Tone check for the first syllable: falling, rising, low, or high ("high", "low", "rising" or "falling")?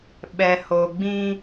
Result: low